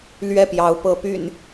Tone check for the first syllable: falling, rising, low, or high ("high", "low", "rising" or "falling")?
falling